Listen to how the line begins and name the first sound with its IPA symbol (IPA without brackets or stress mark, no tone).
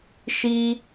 ʃ